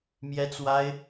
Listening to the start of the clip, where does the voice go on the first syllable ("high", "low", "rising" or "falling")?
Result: high